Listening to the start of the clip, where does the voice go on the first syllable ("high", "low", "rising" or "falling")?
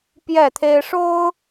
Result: falling